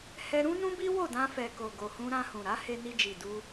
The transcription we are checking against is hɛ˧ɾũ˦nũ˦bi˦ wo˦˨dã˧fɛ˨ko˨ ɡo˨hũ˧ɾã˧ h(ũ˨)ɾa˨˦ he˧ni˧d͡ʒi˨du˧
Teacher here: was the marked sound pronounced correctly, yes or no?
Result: yes